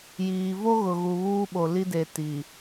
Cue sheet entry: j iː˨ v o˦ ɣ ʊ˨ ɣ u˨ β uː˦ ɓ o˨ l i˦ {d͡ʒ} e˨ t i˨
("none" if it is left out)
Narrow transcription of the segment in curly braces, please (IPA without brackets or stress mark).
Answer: d